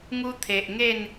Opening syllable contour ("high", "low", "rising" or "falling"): high